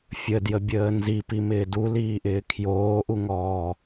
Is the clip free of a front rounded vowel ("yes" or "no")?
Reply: yes